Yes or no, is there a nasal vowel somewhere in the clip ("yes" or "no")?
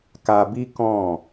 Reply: yes